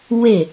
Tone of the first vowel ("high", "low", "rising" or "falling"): falling